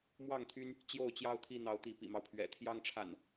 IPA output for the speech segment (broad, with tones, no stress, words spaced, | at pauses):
mwɑ˥˨ŋt̪ʰy˦n | t͡ɕjo˥˨ʊ̯t͡ɕjɑ˥˨ʊ̯t̪ʰi˥˨n̪ɑ˨˦ʊ̯ t̪i˨˦pḭ˨˩mɑ˦ʊ̯pʰɥɛ̰˨˩ t̪ʰjɑ˦ŋʈ͡ʂʰa̰˨˩n